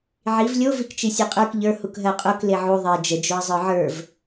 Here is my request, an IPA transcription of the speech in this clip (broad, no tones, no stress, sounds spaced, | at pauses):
ʕ i v lʲ o v i k t͡ʃ i sʲ e qʼ ə˞ k ʎ ə˞ h u k ɦ ɜ qʼ o k l e ʕ u ðˤ e d͡ʒ ə d͡ʒ o ə̯ zˤ ə˞ ʕ ə˞ v